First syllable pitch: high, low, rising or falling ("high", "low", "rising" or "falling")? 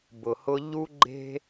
low